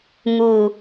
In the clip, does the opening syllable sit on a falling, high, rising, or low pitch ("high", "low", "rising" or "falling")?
low